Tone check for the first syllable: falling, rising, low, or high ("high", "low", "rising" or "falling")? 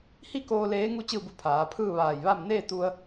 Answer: falling